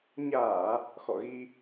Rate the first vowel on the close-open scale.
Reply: open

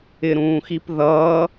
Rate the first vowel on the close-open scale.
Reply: close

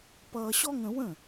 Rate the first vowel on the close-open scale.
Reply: mid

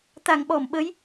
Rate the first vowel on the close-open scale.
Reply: open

